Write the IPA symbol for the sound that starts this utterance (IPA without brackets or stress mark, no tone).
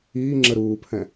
iː